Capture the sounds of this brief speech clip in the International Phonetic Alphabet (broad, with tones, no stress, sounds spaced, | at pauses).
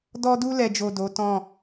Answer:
d ɔ˧ d u˧ l ɛ˨ d͡ʒ o˨ d o˨˦ t ɔ̃˦˨